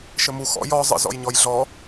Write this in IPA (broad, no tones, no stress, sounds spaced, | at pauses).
ʃ ɘ m u x ɔ̰ j ɔ zˤ ə̰ z ɔ̰ j ɲ ɔ j ɮ ɔ